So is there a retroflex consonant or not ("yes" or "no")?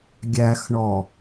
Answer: yes